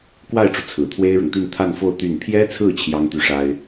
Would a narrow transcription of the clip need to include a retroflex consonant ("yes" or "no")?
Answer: yes